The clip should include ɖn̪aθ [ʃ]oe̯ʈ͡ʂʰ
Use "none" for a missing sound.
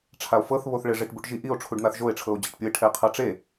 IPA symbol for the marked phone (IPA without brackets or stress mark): ʒ